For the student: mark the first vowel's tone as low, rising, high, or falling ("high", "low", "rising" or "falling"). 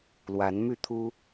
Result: rising